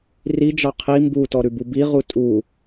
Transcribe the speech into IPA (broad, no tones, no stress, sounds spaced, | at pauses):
r i d͡ʒ ɑ qʰ i m b u t ɔ ɾ ʉ b u b i ʁ u tʼ u